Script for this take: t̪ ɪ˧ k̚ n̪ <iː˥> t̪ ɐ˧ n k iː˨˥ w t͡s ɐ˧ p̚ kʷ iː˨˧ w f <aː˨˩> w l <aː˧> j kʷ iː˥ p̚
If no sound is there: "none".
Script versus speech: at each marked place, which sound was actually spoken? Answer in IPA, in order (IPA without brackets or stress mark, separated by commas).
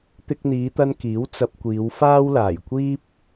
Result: iː˨˧, aː˥, aː˨˩